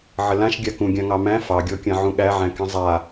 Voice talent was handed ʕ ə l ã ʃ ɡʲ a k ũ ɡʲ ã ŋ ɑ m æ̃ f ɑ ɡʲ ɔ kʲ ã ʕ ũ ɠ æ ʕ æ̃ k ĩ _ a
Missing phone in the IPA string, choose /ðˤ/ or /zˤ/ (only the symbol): zˤ